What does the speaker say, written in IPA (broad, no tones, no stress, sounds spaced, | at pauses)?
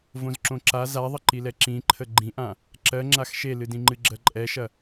v õ z ǁ õ ǁ a z a ðˤ ə ǃ i l ɛ ǁ ĩ ǃʰ ə ɡ͡ǃ ĩ ʔ ã | ǁ ɜ ŋ͡ǁ a x ʃ e l ɨ d ĩ ŋ͡ǃ ɨ ɡ͡ǁ ɜ ǃʼ ɛ ʃ ɐ